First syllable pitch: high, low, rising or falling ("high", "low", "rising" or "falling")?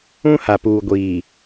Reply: high